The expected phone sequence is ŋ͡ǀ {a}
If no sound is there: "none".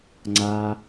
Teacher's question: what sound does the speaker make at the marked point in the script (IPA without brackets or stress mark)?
a